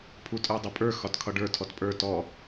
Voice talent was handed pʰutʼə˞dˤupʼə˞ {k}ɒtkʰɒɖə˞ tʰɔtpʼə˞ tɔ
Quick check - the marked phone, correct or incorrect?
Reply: incorrect